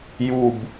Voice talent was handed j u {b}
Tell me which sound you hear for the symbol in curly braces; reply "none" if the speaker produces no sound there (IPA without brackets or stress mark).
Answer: b